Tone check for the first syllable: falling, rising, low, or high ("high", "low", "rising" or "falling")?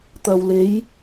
low